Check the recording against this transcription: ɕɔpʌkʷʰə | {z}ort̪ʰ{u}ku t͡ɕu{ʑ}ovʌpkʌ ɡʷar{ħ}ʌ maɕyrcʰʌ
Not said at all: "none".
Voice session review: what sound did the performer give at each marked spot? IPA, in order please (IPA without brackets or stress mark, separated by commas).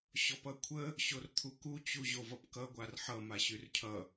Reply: ɕ, u, ʑ, ħ